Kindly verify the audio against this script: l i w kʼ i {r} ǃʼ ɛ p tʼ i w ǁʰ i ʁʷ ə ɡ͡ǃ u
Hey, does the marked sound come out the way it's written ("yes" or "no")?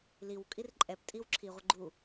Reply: yes